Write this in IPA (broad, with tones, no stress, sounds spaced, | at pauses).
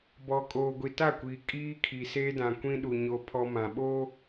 b ɔ˨ kʼ oː˨ ɡʷ i˨ t a˦˨ kʷ iː˨ kʼ iː˦ kʰ i˨ s eː˦ d ã˨ kʷ ĩ˦ ɗ u˨ ɲ o˦ pʰ ɔ˦ m ã˨ ɓ o˦